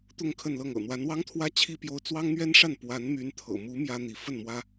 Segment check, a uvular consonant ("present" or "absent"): absent